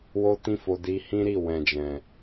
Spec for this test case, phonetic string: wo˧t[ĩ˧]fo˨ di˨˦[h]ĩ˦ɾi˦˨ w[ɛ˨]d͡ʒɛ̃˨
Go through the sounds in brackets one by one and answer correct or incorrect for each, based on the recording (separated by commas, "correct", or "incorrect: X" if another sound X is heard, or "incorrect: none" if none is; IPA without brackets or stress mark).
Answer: correct, correct, incorrect: ɛ̃˨